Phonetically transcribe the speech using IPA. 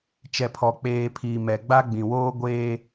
t͡ʃ ɛ˨ pʰ ɔ˨ k͡p eː˨ pʰ iː˨ m ɛ˨ ɡ͡b a˦ ɡ͡b ĩ˨ w oː˦ ɡʷ eː˦

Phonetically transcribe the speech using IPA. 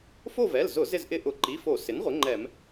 f o˦˨ v ɛ˩˧˩ l z ʊ˧˩˧ z ɪ˦˨ z ʔ ɪ˦˨ ʔ ʊ˧˩˧ ǃ i˩˧˩ f o˧˩˧ s ɪ˩˥ n ʁʷ ɪ˩˥ ŋ͡ǃ ɛ˧˩˧ m

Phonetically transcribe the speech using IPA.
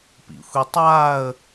p ḭ xʷ i tˤ aː ə̯

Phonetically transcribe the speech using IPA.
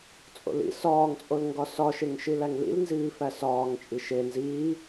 t͡sʼ o̰ l ḭ s ɒː ŋ t͡sʼ o l ŋ ɡ ɒ s ɒ ʃ e ŋ ʃ i l æ ŋ l ḭ l n z iː f æ s ɒː ŋ t͡ʃʼ i ʃ e n z iː

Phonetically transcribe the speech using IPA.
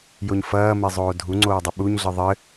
j o ɲ f ɐː m e zˤ oː dʱ u ŋ͡ǀ oː dˤ ɘ ɓ u ɲ ɮ ɨ ðˤ ɘ

